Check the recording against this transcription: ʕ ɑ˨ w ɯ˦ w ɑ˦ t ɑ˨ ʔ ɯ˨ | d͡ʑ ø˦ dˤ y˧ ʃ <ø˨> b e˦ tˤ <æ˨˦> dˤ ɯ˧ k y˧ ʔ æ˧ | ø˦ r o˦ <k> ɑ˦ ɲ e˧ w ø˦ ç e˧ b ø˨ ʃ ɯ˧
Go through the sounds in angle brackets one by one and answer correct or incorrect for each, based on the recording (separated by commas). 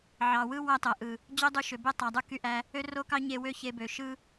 correct, incorrect, correct